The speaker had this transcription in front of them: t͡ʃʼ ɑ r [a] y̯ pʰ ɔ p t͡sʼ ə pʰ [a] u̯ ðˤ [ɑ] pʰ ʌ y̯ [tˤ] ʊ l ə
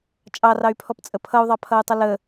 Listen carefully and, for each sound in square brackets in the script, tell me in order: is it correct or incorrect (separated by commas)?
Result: incorrect, incorrect, correct, correct